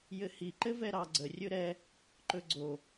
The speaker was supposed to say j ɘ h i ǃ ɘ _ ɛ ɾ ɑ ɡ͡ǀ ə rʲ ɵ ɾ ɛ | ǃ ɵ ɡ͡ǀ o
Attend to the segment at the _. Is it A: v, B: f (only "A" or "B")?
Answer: A